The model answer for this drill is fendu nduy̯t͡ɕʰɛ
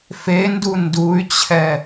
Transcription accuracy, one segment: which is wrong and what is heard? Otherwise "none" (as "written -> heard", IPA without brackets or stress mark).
none